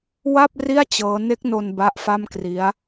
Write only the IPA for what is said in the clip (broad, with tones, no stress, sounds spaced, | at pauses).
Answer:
w a˥˩ p̚ r i˥˩ a̯ t͡ɕ ɤː˦˥ n e˦˥ k̚ n o˧ n b a˦˥ ʔ f a˥˩ m k r i˦˥ a̯